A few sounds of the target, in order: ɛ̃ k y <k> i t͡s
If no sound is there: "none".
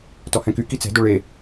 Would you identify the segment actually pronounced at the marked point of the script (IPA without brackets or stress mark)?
k